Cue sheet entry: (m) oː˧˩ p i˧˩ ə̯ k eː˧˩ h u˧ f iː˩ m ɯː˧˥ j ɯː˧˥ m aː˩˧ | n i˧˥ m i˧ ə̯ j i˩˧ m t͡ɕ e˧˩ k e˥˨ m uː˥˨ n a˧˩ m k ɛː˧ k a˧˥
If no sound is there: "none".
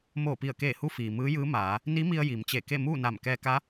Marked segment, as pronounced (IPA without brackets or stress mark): m